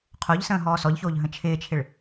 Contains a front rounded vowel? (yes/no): no